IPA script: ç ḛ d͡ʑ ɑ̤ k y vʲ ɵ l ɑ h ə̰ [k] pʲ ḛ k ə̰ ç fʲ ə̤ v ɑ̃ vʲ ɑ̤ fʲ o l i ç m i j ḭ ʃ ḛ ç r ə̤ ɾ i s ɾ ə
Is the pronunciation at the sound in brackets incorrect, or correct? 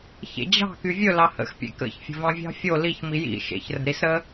incorrect